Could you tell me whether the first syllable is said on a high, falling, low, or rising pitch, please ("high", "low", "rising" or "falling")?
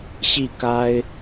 falling